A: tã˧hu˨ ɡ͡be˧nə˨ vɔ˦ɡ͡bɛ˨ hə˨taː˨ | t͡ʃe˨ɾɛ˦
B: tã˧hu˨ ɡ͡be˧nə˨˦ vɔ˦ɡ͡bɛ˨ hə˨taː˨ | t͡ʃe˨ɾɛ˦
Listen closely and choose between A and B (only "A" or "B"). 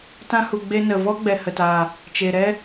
A